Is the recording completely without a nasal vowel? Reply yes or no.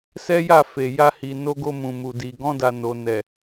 no